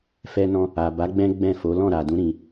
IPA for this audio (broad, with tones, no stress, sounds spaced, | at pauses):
f ɛ˧ n ɔ̃˧ | a˨ b a˨˦ ɡ͡b ɛ̃˦ ɡ͡b ɛ̃˦˨ f o˨˦ l ɔ̃˦˨ ɾ a˨ d ũ˨˦ ɾ ĩ˧